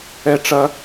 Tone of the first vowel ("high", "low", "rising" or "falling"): high